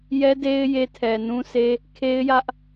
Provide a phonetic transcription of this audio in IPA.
jɛ˦de˦ɪ̯ je˦ tʰɛ˨nũ˦se˦ | kʰe˦ɪ̯jä˦ʔ

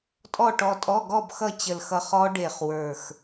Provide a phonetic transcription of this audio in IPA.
tʼɔ˥˨ʈɔ˧tʼɔ˧˥˧ ɡɔ˥˨bxʌ˥˨ t͡ɕə˧˩lxʌ˧χɔ˦˥ ɖe˧˩χwə˞˧˩x

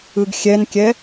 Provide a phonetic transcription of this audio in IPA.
ɯɡxʲɛnkʲɛ

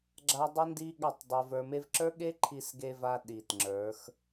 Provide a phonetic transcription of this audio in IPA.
ɡ͡ǁa˦dˤi˦ndi˦ ɠa˦˨tˤdˤe˧və˞˧me˦v ǁə˞˦ɠe˦ǃʰi˧sɡe˧ va˦ ɗi˨tŋ͡ǁə˞˨˦x

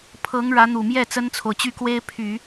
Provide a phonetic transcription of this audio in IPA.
pʰɤ˧˥ŋ ɻä˧˥n̪u˨˩mjɛ˥˩ t͡sə˥nt͡sʰo˨ʊ̯t͡ɕy˥˩kwe˥ɪ̯ pʰy˨˩˦

